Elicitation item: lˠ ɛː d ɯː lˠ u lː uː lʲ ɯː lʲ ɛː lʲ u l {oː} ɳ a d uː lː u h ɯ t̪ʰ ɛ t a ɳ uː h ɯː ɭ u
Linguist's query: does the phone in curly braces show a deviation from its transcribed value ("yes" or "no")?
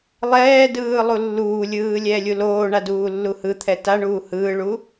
no